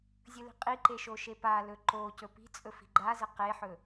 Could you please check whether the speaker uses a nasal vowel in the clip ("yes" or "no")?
no